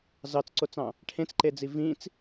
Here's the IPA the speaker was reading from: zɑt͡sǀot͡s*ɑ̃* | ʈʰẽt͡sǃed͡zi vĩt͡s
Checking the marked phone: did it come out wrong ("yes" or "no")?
no